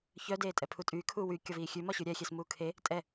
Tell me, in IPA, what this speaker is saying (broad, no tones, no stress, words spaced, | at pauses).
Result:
çœ deːtʼɛpʰutʼyː kʰuːwy kʲɒviːxʲʉ mɒɕʉɾʲɛ xʲesmuːkʰe | tʼɛ